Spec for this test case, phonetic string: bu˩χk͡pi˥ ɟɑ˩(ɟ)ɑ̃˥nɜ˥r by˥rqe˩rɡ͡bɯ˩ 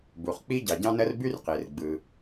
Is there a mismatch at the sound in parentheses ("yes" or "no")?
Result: no